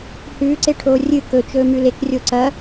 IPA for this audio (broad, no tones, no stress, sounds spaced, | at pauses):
h ʉː ǀ e ʈʰ oː rʲ ɨ k ɵ t͡ʃ ɵː m ʉ l e k rʲ o ǀ ɐ